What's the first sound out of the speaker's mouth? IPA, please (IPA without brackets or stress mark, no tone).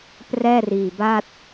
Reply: p